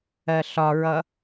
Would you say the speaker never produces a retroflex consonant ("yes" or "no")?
yes